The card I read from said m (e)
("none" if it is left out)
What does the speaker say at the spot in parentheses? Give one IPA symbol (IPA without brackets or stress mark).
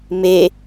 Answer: e